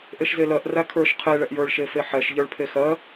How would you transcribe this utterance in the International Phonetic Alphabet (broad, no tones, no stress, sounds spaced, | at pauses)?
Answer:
ʔ e ʃ z e l ɜ ʔ r æ kʰ ə˞ ʃ qʰ e ɭ ɛ ʔ j ə˞ ɭ ʃ e f e ħ ɛ ʃ ʎ ə˞ ɭ pʰ e x ɜ